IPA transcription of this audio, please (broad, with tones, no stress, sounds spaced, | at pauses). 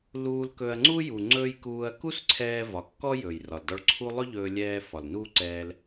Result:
l uː˧ l k ɵ˧ ɐ̯ ŋ͡ǀ u˥ j u˩ ŋ͡ǀ ɵː˧ j k uː˧ ɐ̯ k u˥ s ǀʰ ɛː˧ v ɒ˩ kː ɔ˥ j ɵː˩ j r ɒ˩ l d ɔ˧ ɭ ǀʰ u˥ lˠ ɵ˥ ʎ ɵː˧ lʲ ɛː˧ f ɒ˩ l n uː˥ ǀ ɛː˧ l